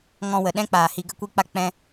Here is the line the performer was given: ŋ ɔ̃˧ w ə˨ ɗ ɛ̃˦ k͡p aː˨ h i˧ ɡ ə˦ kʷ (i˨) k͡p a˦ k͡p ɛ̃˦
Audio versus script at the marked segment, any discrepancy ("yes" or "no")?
yes